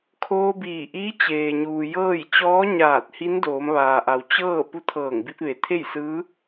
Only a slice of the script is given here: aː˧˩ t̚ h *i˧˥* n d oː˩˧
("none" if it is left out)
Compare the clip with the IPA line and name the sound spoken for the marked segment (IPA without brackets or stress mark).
i˧˥